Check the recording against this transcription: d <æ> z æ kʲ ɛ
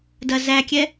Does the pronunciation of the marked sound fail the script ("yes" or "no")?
yes